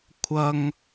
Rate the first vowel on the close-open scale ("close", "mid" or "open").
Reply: open